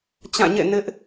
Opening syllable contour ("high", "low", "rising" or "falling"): falling